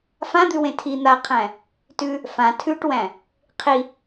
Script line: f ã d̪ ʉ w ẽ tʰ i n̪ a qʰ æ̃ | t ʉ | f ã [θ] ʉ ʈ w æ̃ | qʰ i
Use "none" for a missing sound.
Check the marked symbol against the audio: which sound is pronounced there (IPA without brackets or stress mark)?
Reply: tʰ